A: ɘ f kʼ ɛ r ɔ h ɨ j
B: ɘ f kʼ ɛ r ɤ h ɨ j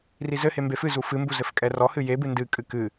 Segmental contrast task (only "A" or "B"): A